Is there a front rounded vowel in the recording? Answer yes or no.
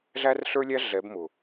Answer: no